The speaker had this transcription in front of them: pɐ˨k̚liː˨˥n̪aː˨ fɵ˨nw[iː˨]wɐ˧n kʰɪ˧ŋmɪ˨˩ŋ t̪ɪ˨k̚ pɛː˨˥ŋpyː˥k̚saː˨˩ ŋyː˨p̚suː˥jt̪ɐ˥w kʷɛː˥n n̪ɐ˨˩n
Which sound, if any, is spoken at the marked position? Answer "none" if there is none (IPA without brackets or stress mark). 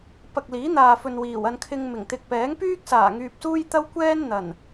iː˨˩